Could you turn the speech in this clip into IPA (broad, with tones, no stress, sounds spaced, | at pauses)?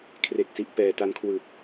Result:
kʰ r e˨˩ k̚ s i˨˩ ʔ p ɛː˨˩ t a˧ n kʰ w ɯ˨˩ k̚